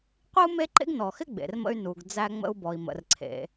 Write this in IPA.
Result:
qʷ i˥ u̯ m e˥ ǃ ḛ˥ ɡ n ɔ˩ x ɪ˥ ɡ͡b ḛ˩ r m ə̰˧ y̯ n u˩ ɡ d͡z æ˧ ŋ͡m ə̰˧ u̯ b ɔ˩ i̯ m ə̰˩ r ǀʰ ḛ˩

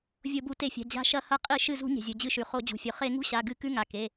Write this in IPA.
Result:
vʲ o˧˩˧ b u˧˩˧ t e˧˩˧ fʲ a̤˩˧˩ d͡ʑ a̤˧˥ ʃ ɐ˧˥˧ h ɐ˧˥ qʼ i˧˩˧ ʃ ɨ˧˩ z ṳ˧˩˧ ɲ e̤˩ zʲ u˩ d͡ʑ ɨ˧˩ ʃ ʉ˩ χ o˧˩˧ d͡ʑ ṳ˩ fʲ ɵ˩ χ e˧˩˧ ŋ ṳ˧˥˧ ɕ a˩˧˩ ɡ ɨ˧˩˧ k ʉ˧˥˧ ŋ a˩˧˩ k e˩˧˩

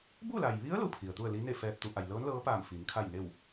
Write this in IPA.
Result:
b u˥˨ l a˩ j ʋ i˧˥ ə̯ l u˧ pʰ i˩ ə̯ t̪ u˥˨ ə̯ l i˧˥ n e˥˨ f ɛː˧ p̚ t̪ u˩˧ ʔ a˩ j l ɤː˧˥ n l ɤː˧˥ p aː˧˩ m f i˩˧ n kʰ a˥˨ j n e˥˨ w

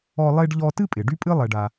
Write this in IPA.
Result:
ɔ˦ lˠ e˦ ɖ ʎ ɔ˦ t ɨ˥ pʼ ɪ˩ ɖ y˥ pʼ ɨ˥ lˠ ɛ˨ ɖ a˨

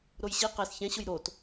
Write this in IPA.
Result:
ɾ o j ɕ i q ɛ s ç ɛ̃ ɕ ʊ j ɾ o t

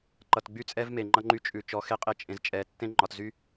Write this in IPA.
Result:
ǃ ʌ˨ t ɡ͡b y˦ t͡sʼ ɛ˦ v m e˨ ŋ͡ǃ ʌ˦ ŋ͡ǃ y˦ t͡ʃʼ ʉ˨ t͡ʃ ɔ˨˦ x e˦ qʼ e˦ t͡ʃʼ ẽ˨ z t͡ʃʼ ɛ˨˦ tː ẽ˦ ŋ͡ǃ ɒ˨ t z y˦

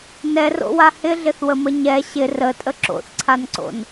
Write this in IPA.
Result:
n ɛ r o̰ w a h ɪ ɮ ɪ θ w ə m ə ɲ ɛ ɕ ɪ r ə tʼ ə ǁ o̰ θ ǀʰ a n ǀ o̰ n

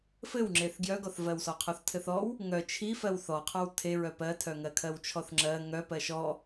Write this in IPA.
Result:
f ɘ w ŋ͡ǁ e θ ɡ j œ ɡ ɔ θ v ɜ w s ɔ qʰ ɔ θ tʰ ɘ θ ɔ w | ŋ œ t͡ʃʰ i f ɜ w θ ɔ qʰ ɔ w tʰ e ɹ œ p ɜ tʰ œ ŋ ɜ kʰ ɜ w t͡ʃʰ ɔ θ ŋ͡ǁ ɜ ŋ œ p ɜ ʃ ɔ

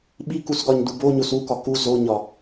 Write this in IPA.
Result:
ɓ i k u s ɡ ɒ ɲ d u b o ɲ o s u k ɒ k u z o ɲ ɒ

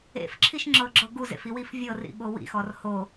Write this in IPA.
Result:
ḛ f ǁʰ i ʃ ŋ͡ǁ ɤ ɡ͡ǁ ɤ ɡ u z ḛ f i w i f vʲ ɤ r ḭ ɓ o w ḭ x ɔ r h o

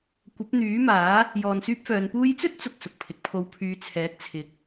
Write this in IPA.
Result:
kʷ ɐ˨˥ p̚ n̪ yː˨˥ m aː˨˥ | j ɔː˨ n s yː˥ p̚ f œː˨˧ n p uː˧ j t͡s ɵ˥ t̚ t͡s ʊ˨ k̚ s ʊ˨ k̚ pʰ ɪ˨˥ k̚ pʰ o˧ w pʰ yː˨˧ t͡sʰ ɛː˨˥ k̚ t͡sʰ ɪ˨˥ k̚

